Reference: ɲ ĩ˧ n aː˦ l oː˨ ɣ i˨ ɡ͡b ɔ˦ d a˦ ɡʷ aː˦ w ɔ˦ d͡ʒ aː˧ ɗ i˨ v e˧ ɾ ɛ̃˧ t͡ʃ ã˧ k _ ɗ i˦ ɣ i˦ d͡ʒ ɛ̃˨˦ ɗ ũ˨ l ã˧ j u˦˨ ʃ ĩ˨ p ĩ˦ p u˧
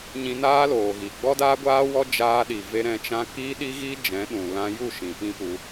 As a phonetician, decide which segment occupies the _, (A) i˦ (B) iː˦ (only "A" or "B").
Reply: B